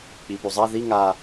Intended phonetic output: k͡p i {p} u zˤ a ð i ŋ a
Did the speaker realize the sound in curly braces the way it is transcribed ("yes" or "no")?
yes